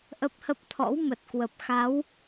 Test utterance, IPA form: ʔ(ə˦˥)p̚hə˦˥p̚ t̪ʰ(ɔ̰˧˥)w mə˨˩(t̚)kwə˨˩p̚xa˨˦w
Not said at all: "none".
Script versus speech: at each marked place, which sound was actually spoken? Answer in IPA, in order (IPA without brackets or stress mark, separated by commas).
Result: ə˦˥, ɔ̰˧˥, t̚